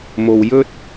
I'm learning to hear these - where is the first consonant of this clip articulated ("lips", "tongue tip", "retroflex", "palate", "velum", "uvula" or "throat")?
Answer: lips